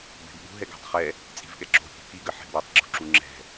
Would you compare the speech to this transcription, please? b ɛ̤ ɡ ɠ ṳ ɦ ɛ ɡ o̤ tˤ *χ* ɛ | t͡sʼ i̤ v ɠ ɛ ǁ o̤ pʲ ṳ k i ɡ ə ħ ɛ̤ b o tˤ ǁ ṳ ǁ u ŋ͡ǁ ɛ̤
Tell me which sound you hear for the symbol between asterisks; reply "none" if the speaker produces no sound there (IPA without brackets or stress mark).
χ